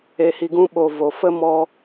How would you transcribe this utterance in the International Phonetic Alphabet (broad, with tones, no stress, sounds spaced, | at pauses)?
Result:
e˧ h i˧ ɡ ũ˦ ɓ o˨ v o˨ f ə˦ m ɔ˧